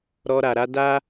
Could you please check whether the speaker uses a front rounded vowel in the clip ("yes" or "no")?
no